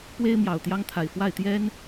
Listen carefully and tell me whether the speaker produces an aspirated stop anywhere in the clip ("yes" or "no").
yes